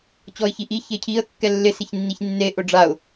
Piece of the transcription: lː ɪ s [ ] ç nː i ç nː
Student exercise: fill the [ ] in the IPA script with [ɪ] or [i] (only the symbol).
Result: ɪ